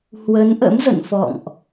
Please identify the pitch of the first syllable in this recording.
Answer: rising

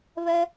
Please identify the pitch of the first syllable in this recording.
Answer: high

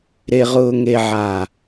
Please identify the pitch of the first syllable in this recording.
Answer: low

